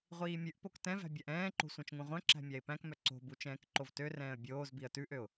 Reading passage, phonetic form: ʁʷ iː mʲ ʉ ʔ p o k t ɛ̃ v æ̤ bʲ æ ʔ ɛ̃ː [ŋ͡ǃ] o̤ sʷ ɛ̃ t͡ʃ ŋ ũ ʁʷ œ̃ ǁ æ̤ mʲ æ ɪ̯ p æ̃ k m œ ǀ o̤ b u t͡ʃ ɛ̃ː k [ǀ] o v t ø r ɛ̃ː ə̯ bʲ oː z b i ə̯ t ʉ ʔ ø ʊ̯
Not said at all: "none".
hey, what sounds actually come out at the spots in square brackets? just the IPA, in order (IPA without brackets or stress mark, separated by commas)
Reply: ǃ, ǃ